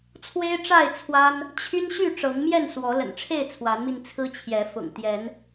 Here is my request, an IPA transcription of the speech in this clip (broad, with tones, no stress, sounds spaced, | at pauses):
t͡sʰ w e˦ ɪ̯ ʈ͡ʂ a˥˨ ɪ̯ t͡sʰ w a˦ n | t͡ɕʰ y˦ n ɕ y˥˨ ʈ͡ʂ ɤ˨˦ ŋ m j ɛ˥˨ n s w ɔ˨˦ l ə̰˨˩ n ʈ͡ʂʰ e˥˨ ɪ̯ t͡sʰ w a˨˦ n m i˧ n t͡sʰ ɹ̩˦ t͡ɕʰ j ɛ˨˦ f ʊ̰˨˩ ŋ t̪ j ɛ˨˦ n